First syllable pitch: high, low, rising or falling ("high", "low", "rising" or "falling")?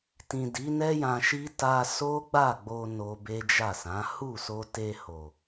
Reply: low